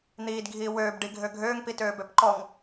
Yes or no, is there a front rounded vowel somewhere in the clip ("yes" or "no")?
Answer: yes